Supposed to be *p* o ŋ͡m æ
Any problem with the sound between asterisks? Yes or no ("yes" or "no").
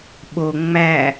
yes